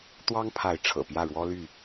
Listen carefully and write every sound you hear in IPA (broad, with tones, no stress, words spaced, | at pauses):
t̪wɑ˦ŋpʰa˨˦ɪ̯ ʈ͡ʂʰɤ̰˨˩pjä˥˨ ɻwɔ˦ly˥˨